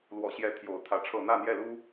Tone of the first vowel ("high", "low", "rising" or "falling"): low